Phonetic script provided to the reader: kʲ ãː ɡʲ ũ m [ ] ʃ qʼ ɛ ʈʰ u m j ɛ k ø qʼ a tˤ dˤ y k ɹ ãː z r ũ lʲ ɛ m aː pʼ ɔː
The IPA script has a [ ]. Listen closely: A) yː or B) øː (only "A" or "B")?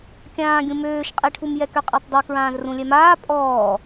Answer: B